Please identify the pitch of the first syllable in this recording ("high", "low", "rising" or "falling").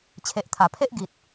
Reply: low